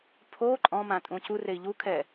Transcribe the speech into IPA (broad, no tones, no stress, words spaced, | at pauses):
pʰo ǃʼɔ̃mã tʼũcurei̯ ʎukʰɛ